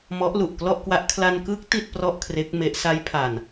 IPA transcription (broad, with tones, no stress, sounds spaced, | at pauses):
m ɔ˦˥ ʔ l u˨˩ ʔ k l ɔ˥˩ ʔ k w a˦˥ ʔ kʰ l a˧ n k ɯ˦˥ k̚ t i˥˩ t̚ p r ɔ˥˩ ʔ kʰ r e˦˥ k̚ m e˦˥ ʔ s a˦˥ j pʰ a˨˩ n